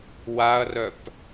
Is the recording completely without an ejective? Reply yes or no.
yes